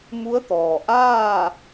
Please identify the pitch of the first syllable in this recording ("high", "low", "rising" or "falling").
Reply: rising